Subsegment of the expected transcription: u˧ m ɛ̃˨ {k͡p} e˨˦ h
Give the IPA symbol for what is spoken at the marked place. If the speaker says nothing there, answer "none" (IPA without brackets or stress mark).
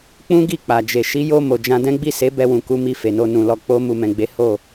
ɡ͡b